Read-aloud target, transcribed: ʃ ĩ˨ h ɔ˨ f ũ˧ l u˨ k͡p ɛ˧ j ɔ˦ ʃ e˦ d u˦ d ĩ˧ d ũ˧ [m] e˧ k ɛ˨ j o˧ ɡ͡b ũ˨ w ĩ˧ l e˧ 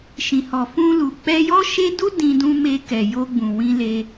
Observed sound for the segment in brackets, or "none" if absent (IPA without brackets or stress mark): m